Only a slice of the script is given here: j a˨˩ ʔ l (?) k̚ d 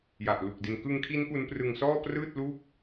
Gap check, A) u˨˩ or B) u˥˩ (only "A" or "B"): A